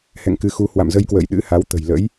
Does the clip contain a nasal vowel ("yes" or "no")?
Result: no